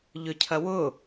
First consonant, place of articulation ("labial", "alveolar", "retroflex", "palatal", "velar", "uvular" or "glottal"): palatal